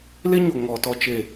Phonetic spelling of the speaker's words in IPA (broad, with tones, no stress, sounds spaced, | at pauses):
l e˦ ɲ o˨ ŋ ɔ˨ t ɔ˧ t͡ʃ e˨